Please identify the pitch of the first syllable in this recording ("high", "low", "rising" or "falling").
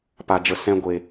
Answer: low